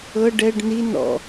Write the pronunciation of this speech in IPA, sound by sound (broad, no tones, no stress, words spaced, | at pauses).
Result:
ɤ ɖɛɖ ni nɔ̰